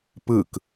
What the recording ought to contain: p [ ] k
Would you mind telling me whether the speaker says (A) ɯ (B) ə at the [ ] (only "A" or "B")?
A